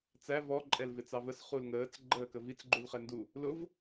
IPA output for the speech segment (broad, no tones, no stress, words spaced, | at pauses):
t͡sæ vɔ ǃʼɛlvɪt͡sɑvəs χulŋəːt͡s ɡ͡ǃəːkəvit͡s ɡ͡ǃulχɛndu | lʊv